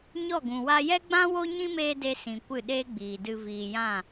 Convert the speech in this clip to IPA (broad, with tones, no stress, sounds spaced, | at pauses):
ɲ ɔ˦˨ ɡ ũ˨ w a˧ j ɛ˦ ɡ͡b ã˦ w o˦ ɲ ĩ˦ m eː˧ d e˧ s ĩ˨ kʷ ɨ˦˨ ɗ eː˦ ɡ͡b iː˨ d ɨ˧ v iː˨ j ã˦˨